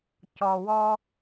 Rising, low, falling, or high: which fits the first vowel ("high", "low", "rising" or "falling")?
low